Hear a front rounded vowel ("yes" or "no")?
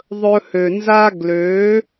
yes